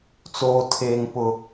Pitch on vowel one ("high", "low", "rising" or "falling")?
high